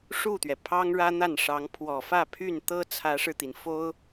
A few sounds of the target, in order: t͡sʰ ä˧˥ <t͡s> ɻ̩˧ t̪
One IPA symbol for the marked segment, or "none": ʂ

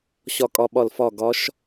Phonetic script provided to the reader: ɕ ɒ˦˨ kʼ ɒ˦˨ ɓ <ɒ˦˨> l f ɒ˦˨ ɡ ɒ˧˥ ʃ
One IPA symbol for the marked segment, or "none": ɒ˦˨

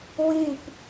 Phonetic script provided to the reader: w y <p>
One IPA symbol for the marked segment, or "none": p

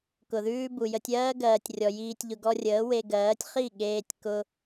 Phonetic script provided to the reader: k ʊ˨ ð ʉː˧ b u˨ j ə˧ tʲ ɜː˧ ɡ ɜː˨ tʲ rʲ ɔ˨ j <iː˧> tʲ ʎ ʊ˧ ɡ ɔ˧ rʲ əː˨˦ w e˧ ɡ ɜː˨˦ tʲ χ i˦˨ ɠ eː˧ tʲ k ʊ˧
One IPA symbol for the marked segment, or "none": iː˧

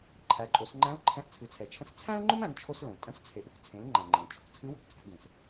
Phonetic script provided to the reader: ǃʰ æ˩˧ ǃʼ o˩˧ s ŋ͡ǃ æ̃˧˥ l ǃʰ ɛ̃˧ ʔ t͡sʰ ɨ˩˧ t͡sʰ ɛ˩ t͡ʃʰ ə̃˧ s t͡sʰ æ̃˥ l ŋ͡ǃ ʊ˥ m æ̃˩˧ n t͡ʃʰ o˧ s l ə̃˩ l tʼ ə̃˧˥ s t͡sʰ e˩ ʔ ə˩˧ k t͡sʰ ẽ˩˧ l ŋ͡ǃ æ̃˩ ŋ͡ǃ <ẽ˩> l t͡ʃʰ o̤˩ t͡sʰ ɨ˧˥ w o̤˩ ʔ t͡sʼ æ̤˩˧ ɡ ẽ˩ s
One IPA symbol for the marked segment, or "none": ẽ˩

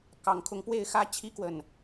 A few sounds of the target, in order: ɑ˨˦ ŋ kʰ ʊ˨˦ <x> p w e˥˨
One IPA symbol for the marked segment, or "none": ŋ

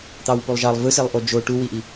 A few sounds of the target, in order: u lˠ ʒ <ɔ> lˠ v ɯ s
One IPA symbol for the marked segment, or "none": ɑ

